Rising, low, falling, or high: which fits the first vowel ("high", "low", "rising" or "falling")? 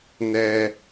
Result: high